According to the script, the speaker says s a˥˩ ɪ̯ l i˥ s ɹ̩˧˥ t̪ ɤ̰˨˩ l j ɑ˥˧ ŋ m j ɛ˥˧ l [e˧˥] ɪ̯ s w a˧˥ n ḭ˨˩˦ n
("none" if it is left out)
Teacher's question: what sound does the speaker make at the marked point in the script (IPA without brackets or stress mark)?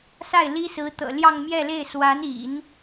e˥˩